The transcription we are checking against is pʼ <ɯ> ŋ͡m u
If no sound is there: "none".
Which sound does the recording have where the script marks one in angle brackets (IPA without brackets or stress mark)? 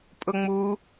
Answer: ʊ